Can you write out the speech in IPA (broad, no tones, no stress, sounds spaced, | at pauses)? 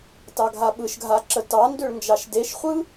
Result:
t ɑ ɡʱ a ɓ ɯ ʃ ɡʱ a ǁ ə t ɑ n d ø ɭ n d͡ʒ ɑ ʃ d e ʃ χʷ ɯ